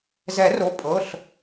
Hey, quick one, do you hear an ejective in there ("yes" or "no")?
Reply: yes